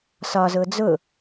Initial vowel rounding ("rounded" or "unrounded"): rounded